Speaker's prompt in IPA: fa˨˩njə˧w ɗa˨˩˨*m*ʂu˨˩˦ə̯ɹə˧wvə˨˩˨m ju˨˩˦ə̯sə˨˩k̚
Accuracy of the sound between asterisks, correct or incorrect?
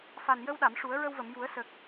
correct